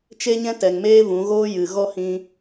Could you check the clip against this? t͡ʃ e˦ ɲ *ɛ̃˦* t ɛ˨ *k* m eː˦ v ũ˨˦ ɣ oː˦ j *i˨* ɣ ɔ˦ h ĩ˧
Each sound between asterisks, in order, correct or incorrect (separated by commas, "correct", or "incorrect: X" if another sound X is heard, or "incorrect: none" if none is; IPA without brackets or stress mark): correct, incorrect: ŋ, incorrect: ɨ˨